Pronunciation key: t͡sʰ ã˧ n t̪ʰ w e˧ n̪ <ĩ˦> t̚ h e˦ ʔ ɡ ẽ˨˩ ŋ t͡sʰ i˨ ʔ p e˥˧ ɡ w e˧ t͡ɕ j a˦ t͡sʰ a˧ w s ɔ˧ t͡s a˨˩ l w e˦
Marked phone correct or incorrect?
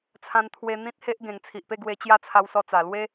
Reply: correct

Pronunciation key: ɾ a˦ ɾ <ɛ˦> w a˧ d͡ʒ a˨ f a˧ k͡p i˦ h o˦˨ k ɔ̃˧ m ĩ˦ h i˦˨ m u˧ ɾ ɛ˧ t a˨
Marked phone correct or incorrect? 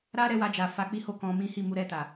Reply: incorrect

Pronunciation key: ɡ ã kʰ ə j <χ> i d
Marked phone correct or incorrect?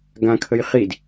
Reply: correct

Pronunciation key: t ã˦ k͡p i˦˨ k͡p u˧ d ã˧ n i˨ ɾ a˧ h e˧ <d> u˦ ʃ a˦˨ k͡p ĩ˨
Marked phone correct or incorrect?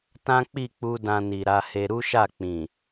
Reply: incorrect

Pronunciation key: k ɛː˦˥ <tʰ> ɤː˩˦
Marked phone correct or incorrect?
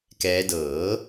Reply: incorrect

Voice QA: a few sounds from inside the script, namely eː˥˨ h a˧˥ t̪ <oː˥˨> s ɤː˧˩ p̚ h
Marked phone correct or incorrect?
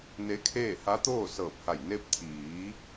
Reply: correct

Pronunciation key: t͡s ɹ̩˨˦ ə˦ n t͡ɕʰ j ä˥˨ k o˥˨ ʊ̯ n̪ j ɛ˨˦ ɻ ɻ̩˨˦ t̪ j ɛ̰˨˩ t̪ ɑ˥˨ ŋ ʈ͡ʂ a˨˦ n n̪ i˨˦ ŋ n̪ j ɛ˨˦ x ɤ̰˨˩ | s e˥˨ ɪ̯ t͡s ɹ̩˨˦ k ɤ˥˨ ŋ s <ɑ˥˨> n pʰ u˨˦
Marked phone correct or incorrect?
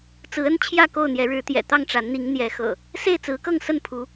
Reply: incorrect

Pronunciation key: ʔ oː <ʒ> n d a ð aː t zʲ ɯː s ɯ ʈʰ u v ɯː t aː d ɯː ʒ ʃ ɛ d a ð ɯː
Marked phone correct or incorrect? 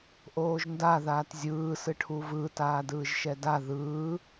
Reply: correct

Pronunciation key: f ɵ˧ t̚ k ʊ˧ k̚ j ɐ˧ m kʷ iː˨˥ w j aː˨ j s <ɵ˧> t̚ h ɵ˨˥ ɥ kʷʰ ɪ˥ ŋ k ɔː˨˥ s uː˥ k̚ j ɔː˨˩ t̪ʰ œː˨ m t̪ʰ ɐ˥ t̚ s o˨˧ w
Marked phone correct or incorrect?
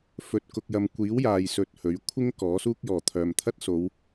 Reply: correct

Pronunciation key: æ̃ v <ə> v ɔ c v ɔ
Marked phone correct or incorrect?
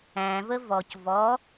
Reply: correct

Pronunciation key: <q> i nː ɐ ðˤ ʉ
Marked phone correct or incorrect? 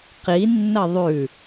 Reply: correct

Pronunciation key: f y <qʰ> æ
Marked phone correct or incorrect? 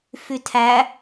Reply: incorrect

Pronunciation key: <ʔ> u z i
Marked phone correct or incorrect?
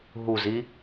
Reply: incorrect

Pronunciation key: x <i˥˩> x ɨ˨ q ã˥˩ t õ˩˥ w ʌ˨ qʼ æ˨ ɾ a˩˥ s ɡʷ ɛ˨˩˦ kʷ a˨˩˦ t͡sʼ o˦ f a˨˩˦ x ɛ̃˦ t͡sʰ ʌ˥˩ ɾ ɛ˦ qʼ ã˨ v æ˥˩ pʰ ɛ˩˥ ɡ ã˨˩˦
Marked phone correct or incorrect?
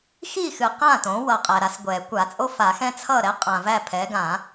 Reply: correct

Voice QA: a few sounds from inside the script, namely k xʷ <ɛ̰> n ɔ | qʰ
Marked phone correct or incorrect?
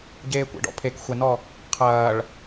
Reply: incorrect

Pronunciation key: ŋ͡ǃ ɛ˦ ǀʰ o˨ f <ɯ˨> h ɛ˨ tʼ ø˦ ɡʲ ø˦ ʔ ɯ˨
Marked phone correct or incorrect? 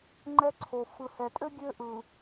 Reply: correct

